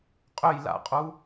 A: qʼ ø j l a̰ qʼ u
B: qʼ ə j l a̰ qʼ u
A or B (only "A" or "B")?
A